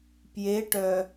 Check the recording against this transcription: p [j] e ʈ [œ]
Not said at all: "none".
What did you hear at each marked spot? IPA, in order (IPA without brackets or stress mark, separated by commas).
j, œ